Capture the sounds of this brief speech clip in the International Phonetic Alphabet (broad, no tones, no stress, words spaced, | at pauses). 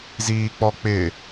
ziːk͡pɔk͡pɪ